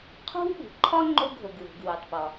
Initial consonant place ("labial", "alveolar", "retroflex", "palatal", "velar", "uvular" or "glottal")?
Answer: uvular